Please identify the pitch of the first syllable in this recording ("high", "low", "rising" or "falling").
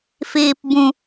low